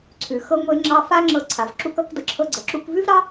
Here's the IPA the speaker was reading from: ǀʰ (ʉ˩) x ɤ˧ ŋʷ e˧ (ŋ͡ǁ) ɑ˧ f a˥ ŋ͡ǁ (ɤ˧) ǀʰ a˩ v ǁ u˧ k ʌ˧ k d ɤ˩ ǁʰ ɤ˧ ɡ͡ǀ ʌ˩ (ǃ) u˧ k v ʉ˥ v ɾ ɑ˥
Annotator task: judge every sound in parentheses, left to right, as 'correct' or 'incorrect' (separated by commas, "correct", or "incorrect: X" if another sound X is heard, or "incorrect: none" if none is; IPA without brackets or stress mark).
correct, correct, correct, incorrect: ǁ